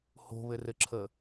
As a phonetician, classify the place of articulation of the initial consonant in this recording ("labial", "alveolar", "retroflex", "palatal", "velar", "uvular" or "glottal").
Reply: glottal